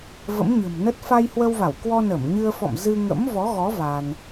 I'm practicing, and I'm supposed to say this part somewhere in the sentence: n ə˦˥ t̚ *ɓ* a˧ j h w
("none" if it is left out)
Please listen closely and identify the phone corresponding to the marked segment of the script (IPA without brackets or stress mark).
f